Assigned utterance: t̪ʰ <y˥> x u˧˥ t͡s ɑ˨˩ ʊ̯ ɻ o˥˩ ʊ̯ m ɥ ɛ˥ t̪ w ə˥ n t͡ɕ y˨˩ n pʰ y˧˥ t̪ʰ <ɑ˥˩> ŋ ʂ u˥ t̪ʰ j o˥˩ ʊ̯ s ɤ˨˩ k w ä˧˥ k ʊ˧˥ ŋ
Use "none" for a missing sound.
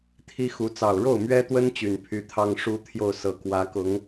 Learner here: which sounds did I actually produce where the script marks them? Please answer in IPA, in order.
i˥, ɑ˥

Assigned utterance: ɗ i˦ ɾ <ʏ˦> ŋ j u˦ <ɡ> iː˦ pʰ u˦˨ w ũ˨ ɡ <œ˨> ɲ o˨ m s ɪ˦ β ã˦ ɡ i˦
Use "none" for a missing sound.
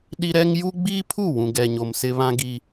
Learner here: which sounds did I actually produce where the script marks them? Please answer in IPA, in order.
ɛ˦, ɡ͡b, ɛ˨

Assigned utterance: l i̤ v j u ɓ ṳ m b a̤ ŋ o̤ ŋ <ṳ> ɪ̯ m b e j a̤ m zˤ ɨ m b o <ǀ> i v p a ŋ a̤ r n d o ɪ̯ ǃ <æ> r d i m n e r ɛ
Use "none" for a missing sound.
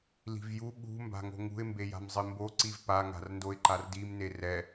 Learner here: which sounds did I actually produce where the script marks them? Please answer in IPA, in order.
ṳ, ǀ, a

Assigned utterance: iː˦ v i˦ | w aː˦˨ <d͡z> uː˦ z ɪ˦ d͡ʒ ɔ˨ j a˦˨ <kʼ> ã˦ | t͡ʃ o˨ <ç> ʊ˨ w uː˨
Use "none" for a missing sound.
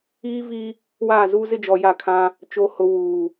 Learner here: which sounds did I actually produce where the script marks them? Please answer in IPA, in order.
z, kʰ, h

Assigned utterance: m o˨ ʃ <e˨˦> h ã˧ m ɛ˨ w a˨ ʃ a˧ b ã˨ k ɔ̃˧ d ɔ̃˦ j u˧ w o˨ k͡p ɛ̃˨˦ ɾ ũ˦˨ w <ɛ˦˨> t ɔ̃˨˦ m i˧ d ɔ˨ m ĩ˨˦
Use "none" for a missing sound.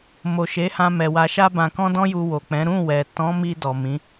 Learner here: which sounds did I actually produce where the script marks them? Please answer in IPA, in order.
e˨˦, ɛ˨

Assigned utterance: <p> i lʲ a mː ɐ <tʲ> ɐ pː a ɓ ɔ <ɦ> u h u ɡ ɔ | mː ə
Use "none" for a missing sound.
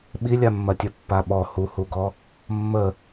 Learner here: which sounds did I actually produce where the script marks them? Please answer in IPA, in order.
ɓ, tʲ, h

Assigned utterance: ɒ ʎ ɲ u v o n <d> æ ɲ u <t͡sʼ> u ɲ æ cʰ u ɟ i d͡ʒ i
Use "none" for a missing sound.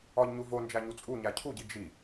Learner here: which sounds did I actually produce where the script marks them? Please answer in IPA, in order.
d͡ʒ, t͡sʼ

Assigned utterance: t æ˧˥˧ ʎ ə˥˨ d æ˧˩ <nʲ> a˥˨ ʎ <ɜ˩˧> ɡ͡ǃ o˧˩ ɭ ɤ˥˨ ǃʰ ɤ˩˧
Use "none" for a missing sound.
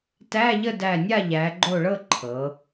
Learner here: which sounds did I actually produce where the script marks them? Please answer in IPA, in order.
nʲ, æ˩˧

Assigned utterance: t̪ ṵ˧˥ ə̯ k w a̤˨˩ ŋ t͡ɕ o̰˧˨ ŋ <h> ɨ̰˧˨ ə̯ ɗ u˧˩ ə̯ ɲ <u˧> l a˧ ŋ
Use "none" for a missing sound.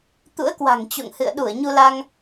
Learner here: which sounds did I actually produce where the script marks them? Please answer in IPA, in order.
h, u˧

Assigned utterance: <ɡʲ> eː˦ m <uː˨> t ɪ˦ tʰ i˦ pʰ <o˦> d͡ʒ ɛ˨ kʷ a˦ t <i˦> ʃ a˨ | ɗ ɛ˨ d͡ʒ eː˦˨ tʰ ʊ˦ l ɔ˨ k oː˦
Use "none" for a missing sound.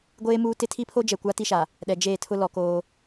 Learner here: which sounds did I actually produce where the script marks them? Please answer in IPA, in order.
ɡʷ, uː˦, o˦, i˦

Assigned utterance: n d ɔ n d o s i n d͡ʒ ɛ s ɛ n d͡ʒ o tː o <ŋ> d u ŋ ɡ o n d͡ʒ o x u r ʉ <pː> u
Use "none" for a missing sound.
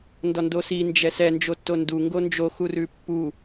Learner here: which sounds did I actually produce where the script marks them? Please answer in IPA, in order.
n, pː

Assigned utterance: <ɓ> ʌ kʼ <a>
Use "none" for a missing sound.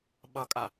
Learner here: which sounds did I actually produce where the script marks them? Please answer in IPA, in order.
ɓ, a

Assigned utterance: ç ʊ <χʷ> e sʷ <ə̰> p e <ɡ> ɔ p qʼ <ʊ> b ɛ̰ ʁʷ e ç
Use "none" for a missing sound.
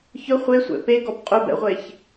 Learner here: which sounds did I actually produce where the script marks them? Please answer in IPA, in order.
χʷ, ɛ̰, ɡ, ʊ

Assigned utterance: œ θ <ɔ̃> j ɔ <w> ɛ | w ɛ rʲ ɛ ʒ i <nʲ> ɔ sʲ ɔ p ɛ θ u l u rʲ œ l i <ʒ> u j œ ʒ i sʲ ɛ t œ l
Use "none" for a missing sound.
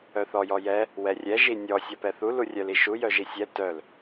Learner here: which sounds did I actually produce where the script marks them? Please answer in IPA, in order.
ɔ, j, nʲ, ʃ

